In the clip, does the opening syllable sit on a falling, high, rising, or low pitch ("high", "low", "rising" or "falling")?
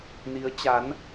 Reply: rising